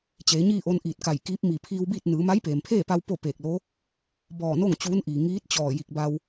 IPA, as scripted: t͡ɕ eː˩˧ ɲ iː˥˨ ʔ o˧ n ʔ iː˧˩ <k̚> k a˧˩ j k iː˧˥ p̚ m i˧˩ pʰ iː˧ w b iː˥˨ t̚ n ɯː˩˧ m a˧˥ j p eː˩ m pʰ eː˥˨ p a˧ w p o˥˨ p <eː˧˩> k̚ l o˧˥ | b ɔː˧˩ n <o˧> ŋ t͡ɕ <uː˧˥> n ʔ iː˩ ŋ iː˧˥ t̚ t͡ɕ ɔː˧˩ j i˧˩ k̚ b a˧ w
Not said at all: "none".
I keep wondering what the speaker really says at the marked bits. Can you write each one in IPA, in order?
t̚, eː˧˩, o˥˨, uː˧˥

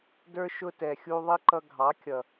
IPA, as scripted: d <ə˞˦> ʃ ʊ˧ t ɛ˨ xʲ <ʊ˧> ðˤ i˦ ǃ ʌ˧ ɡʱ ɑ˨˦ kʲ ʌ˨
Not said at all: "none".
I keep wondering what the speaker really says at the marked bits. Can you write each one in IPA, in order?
ə˞˦, u˧

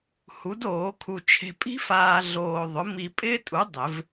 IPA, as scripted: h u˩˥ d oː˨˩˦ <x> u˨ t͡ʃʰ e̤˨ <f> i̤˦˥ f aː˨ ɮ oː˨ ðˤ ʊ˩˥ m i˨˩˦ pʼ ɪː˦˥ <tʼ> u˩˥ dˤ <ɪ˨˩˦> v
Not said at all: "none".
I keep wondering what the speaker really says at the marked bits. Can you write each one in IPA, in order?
kʰ, pʼ, tʼ, ɪ˨˩˦

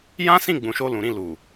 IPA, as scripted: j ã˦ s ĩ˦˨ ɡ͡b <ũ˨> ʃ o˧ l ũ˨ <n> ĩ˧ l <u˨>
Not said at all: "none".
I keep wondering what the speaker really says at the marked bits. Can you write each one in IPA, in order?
ũ˨, ɾ, u˨

